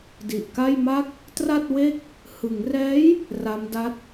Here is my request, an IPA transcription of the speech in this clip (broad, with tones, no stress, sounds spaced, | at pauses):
d i˨˩ ʔ k a˥˩ j m a˥˩ k̚ | t r a˥˩ t̚ w e˥˩ k̚ | h ɯ˩˦ ŋ r ɛː˦˥ j | r a˦˥ m d a˦˥ t̚